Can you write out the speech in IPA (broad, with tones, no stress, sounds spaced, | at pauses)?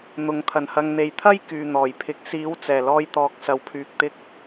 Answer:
n̪ ʊ˨ ŋ t̪ʰ ɐ˨˩ n h ɐ˨ ŋ n̪ e˨ j t̪ʰ ɐ˥ j k yː˨ n̪ ɔː˨˩ j pʰ ɪ˨˥ k̚ s iː˨˥ w t͡s ɛː˨˩ l ɔː˧ j t̪ ɔː˨ k̚ s ɐ˨ w pʰ yː˨ k̚ t̪ ɪ˧ k̚